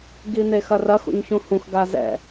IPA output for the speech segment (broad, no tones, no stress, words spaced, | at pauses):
ɡin̪exɐrɐx ṵɲçũhũx ɡazɛ̰